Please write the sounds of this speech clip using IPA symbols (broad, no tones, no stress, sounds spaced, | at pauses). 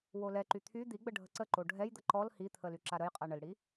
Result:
w o l ɛ ǃ y t̪ʰ y d̪ i ɡ͡b ə ɖʱ ə ǀ ə ǃ o ɖʱ ɛ j d̪ ə ǃ ɔ l h i t̪ʰ ə l y ǁ a ɾ ə j qʼ a ɳ ə l ɽ i